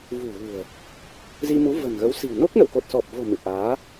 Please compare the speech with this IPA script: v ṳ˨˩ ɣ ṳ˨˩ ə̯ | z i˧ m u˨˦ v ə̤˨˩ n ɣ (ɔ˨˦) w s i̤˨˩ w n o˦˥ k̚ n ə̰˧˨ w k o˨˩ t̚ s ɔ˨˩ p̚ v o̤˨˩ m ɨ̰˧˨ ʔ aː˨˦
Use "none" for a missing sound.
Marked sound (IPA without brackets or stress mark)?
ə˨˦